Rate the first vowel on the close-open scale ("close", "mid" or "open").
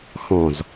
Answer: mid